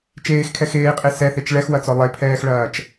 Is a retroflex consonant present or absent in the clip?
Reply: present